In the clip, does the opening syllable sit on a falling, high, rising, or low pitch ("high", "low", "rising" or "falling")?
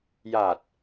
low